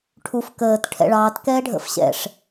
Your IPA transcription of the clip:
ʈʰ u f k əː t ʈʰ ɛ̰ ɭ ɑː t k ɛː ɖʱ ə̰ f ɕ ɛ̰ ʂ

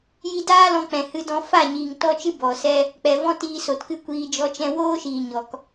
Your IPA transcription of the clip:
j i˧ d aː˦ l ɔ̃˧ k͡p ɛ̃˨ h ɨ˧ d ɔ̃˧ f a˦˨ ɲ iː˨ ŋ t ɔ˦ t͡ʃ ɨ˦ b ɔ˨ s ɛ˦ | k͡p ɛ˨ v ɔ̃˦ t iː˧ s o˨ t k ɨ˦ kʷ iː˧ d͡ʒ ɔ˧ t͡ʃ ɛ̃˧ w oː˦ ʃ iː˨ ɲ ɔ˨ k

